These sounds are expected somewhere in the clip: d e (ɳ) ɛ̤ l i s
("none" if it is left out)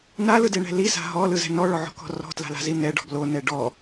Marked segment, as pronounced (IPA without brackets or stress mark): ɳ